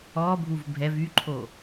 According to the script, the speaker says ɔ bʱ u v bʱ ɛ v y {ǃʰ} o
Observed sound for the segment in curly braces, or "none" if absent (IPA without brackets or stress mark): ǃʰ